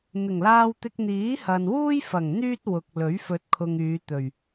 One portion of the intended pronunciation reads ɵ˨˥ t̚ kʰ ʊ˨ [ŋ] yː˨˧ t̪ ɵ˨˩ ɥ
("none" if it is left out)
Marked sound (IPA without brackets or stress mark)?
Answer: ŋ